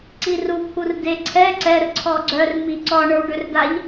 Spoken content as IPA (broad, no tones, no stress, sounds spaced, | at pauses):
ǀ i r u t̪ʰ u r d e ǀʰ ɛ ǀ ɛ r ǀʰ ɔ ɡ͡ǀ œ r m i ǀ ɔ ɳ ə˞ w ɖ ø r d a ʎ